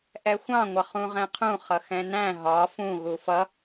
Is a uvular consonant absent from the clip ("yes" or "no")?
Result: no